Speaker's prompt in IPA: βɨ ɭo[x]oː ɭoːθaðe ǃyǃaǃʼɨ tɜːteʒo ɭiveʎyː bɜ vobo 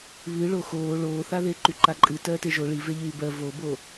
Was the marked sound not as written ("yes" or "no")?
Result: no